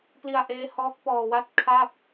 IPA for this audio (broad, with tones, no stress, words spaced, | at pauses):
pli˧a̯ʔeː˦˥ hɔː˦˥k̚pɔː˧wa˥˩t̚ kʰa˥˩p̚